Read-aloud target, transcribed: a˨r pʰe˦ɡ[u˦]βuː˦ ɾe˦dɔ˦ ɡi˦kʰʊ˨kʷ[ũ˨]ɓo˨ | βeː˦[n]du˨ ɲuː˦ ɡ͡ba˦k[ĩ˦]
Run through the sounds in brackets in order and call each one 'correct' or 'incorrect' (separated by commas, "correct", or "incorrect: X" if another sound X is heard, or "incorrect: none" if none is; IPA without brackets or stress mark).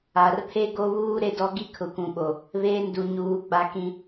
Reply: incorrect: o˦, correct, correct, correct